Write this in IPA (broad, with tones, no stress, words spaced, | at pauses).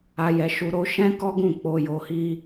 a˧jɛ˧ʃu˧ ɾo˧ʃɛ̃˦kɔ˦ɡũ˦˨ k͡po˧jo˧hi˦